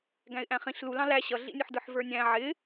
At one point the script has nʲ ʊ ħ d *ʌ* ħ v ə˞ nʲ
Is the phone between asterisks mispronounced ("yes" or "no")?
yes